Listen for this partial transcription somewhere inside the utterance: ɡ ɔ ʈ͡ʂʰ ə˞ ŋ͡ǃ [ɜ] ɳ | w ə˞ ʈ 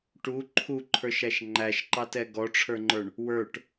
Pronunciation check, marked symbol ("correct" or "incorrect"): incorrect